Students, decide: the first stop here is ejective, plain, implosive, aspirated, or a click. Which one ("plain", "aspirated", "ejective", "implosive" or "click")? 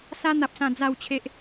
plain